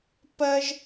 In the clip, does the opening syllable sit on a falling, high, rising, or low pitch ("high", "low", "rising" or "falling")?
high